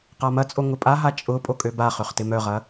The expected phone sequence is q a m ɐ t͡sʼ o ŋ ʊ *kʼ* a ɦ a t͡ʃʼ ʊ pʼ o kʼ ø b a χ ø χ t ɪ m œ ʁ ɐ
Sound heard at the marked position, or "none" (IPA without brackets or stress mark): pʼ